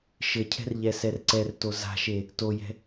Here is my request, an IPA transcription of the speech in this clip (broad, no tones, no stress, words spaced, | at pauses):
ʃɘcʰɛ̤r ʎɛsɛrǀɛrto za̤ʃe | tojɛ̤